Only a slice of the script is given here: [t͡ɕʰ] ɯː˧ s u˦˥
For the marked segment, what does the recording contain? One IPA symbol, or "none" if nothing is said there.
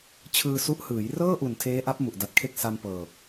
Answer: t͡ɕʰ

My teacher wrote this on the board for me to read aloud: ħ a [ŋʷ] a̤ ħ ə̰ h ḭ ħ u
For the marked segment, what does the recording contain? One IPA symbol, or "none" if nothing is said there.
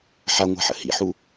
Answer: ŋʷ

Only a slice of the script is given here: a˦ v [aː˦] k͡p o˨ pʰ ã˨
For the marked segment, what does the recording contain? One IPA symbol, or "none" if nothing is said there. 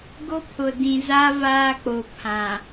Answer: aː˦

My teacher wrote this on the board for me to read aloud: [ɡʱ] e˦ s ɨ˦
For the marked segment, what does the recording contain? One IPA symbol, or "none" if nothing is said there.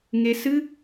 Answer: ŋ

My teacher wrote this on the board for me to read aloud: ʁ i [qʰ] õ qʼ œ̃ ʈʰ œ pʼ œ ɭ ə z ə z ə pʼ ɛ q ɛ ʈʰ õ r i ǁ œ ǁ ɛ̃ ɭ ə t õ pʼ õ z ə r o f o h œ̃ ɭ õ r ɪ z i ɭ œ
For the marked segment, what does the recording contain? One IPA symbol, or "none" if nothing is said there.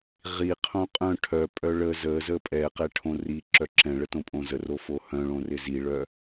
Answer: qʰ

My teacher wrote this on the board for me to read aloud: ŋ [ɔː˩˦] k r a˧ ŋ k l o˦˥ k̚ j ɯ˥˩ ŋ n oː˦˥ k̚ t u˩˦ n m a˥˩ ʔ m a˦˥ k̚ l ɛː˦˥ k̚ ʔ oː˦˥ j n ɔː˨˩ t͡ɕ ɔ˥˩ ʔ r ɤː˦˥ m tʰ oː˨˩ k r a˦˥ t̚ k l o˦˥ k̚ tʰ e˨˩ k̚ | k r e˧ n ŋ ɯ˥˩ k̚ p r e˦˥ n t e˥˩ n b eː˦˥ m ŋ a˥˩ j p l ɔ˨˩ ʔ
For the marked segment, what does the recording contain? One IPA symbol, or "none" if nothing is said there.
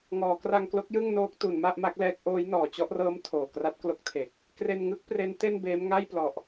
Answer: ɔː˩˦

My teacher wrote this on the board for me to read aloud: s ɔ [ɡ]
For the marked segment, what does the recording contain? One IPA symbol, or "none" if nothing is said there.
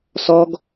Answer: ɡ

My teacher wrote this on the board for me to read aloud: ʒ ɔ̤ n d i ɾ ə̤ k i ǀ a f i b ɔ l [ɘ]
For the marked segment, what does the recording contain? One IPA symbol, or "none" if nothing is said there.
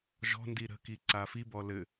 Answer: ɘ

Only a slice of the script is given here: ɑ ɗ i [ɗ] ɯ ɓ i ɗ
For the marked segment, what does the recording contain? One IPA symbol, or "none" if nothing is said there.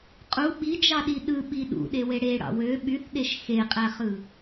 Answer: ɗ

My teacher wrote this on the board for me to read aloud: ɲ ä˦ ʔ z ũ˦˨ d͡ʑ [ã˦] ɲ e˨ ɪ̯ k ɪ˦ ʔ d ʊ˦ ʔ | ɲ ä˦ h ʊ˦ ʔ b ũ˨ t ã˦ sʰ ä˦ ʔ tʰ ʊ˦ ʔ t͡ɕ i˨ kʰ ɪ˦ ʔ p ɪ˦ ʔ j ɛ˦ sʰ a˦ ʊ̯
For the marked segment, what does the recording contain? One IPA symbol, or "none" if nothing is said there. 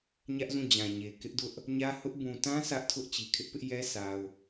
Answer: ã˨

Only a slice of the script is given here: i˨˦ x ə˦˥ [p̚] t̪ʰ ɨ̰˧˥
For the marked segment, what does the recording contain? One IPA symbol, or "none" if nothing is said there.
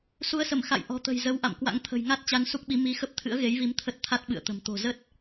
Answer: p̚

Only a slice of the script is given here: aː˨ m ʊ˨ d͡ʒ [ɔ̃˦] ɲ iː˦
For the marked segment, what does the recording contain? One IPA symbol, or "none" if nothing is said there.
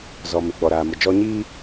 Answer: ɔ˦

